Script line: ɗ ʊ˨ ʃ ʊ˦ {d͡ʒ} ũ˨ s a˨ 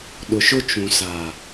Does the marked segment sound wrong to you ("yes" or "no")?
yes